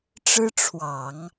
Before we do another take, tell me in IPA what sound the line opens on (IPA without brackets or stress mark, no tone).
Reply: ʈ͡ʂ